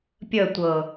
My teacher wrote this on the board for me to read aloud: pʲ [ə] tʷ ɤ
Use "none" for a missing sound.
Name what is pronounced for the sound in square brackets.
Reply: ə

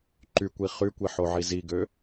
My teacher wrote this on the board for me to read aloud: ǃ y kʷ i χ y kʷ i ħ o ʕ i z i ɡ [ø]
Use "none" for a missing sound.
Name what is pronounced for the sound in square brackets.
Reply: ø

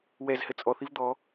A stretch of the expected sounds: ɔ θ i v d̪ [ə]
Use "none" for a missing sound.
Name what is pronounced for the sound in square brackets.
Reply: ɔ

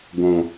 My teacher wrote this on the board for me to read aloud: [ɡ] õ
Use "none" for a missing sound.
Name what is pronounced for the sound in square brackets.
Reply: ɡ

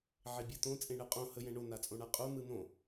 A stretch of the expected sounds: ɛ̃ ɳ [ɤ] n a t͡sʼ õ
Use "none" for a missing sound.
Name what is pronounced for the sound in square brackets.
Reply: o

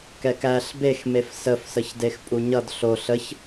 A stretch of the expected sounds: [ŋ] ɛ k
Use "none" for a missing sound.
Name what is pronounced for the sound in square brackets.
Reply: k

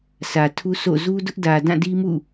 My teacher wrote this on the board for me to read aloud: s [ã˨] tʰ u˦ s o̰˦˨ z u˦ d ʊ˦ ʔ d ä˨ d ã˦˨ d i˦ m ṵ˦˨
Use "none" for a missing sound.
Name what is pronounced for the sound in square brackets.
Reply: ä˨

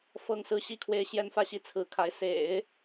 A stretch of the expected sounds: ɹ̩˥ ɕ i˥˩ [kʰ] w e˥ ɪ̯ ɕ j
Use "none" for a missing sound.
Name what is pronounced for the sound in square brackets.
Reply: kʰ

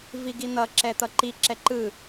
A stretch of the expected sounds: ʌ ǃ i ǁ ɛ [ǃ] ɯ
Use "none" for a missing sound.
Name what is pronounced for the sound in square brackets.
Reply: ǃ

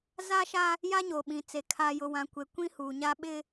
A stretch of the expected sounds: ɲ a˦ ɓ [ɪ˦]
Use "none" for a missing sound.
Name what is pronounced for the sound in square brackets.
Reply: ɪ˦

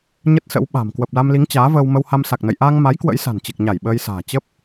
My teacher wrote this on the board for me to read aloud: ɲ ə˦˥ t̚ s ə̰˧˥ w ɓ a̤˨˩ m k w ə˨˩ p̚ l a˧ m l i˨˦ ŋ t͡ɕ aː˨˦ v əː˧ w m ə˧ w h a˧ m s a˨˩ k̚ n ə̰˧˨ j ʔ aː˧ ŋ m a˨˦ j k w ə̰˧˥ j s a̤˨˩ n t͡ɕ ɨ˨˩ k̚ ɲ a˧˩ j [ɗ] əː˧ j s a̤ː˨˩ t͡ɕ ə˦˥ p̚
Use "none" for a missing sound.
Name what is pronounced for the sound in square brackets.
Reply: ɓ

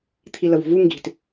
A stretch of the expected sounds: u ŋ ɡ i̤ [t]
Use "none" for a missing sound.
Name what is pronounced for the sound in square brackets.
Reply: t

